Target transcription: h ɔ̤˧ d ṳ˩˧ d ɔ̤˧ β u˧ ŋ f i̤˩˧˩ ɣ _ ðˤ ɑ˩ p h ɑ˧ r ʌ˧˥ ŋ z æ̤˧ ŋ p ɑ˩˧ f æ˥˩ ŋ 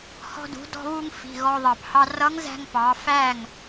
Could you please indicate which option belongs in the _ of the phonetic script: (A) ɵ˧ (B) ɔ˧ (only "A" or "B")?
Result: B